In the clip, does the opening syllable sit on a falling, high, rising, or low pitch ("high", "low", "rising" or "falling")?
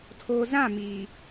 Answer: low